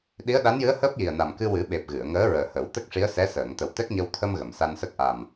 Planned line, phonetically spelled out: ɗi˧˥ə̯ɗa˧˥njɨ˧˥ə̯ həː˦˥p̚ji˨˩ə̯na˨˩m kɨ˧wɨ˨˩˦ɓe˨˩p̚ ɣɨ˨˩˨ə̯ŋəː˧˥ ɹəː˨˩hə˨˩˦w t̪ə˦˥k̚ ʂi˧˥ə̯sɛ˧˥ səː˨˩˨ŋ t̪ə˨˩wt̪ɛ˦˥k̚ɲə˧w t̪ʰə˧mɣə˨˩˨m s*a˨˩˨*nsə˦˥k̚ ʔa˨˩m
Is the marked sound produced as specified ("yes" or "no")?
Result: no